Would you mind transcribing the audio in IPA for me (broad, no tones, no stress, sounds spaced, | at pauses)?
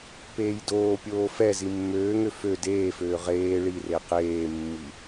p eː j d oː pʲ oː f ɛ z i mː øː ŋ ø f ø d eː f øː ʁ eː ɭ i r e q eː mː i